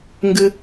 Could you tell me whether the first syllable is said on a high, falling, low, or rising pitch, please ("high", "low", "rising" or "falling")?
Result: high